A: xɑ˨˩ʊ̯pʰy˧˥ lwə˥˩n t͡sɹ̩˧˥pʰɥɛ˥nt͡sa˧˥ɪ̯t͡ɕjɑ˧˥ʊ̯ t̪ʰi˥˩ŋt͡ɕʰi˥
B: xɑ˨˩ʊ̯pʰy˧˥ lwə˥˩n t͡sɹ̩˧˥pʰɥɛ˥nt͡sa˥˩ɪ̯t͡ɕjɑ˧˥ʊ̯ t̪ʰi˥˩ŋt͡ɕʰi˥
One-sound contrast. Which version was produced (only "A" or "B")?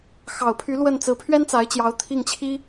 A